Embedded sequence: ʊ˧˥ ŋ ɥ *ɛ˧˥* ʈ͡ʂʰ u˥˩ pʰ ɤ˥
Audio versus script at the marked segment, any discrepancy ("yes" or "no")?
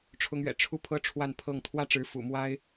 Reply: yes